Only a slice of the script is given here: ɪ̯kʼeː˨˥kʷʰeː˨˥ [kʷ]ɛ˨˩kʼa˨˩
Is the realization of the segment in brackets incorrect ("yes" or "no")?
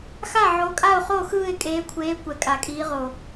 no